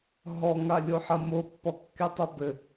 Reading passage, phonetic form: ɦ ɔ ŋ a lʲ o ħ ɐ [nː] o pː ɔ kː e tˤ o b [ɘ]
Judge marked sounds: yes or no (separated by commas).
no, yes